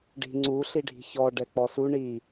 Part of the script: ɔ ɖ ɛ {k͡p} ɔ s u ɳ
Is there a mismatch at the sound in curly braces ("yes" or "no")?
no